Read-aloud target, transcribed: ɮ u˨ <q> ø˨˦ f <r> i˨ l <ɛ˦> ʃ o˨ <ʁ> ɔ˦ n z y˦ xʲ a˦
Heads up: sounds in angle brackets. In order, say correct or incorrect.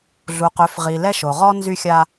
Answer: correct, incorrect: ʁ, correct, correct

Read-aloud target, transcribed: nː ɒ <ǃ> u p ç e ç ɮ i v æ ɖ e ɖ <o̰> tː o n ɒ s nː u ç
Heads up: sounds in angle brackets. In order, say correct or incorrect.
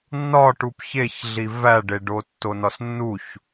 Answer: incorrect: ʈ, incorrect: o

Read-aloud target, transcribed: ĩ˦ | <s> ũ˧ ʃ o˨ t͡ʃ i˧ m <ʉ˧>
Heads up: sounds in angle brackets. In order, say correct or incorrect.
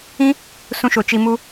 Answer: correct, incorrect: u˧

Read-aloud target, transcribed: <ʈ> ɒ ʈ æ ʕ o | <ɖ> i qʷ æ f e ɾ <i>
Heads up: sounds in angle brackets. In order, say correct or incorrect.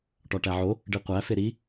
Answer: correct, correct, correct

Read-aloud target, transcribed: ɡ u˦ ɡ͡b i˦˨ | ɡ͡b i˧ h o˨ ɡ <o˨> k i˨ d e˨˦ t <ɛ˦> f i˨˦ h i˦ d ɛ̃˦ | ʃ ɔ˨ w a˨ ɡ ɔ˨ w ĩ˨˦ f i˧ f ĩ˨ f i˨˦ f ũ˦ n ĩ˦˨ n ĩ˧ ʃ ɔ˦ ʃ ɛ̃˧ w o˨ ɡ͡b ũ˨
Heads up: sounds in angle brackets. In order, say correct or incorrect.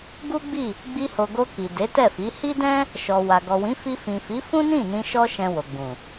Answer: incorrect: o˧, incorrect: ɛ˦˨

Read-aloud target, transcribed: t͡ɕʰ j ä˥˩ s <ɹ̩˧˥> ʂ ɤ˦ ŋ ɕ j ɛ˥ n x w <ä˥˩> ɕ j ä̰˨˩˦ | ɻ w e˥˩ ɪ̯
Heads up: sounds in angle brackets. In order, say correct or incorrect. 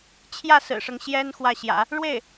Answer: incorrect: ɹ̩˨˩, correct

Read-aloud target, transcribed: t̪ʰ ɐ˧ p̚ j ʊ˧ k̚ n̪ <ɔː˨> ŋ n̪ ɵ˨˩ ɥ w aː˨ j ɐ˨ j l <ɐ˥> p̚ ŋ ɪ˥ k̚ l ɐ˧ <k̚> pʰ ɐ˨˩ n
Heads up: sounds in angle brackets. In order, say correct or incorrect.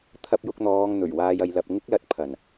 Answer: incorrect: ɔː˨˧, incorrect: ɐ˨, incorrect: t̚

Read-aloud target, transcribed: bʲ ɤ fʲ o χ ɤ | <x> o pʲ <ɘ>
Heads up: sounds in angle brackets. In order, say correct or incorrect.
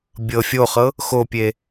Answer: correct, incorrect: e

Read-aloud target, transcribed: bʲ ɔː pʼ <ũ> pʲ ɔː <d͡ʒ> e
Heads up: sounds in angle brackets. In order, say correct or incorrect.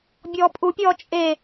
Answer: incorrect: u, incorrect: t͡ʃʼ

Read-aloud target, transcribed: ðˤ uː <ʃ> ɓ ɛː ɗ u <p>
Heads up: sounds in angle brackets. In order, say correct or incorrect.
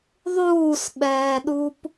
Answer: incorrect: s, correct

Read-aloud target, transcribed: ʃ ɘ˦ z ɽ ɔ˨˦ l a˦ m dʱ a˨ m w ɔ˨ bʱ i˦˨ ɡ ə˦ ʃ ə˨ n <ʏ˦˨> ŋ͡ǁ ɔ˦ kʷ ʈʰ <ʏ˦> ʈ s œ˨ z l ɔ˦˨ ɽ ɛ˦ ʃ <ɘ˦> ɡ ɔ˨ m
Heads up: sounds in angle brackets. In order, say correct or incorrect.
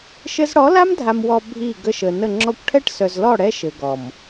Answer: incorrect: ə˦˨, incorrect: ɛ˦, incorrect: ɘ˨

